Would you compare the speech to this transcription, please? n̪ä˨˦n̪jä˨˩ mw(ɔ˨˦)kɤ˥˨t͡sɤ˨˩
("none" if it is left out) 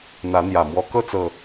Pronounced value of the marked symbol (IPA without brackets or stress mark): ɔ˨˦